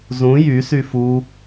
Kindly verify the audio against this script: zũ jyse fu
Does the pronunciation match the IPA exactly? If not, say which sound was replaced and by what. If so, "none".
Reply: e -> y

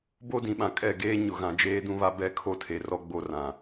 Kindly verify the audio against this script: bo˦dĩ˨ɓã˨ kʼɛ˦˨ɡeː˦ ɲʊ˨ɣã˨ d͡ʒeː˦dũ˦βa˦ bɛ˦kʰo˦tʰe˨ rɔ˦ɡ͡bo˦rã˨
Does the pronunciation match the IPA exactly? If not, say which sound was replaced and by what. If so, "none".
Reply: none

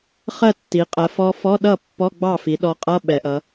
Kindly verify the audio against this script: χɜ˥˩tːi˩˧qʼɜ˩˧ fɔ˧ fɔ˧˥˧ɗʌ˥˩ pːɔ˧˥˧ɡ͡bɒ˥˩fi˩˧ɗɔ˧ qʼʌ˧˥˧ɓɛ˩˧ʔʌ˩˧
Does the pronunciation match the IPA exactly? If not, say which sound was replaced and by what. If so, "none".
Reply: ɒ˥˩ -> ɑ˥˩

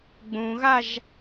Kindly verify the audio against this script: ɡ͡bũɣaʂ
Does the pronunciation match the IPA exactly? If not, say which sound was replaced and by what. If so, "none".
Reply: ʂ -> ʒ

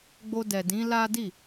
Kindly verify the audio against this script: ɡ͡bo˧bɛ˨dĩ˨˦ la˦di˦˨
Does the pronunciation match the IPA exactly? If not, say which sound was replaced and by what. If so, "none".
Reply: b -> d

